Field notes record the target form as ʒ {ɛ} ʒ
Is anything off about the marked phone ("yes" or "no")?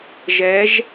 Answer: no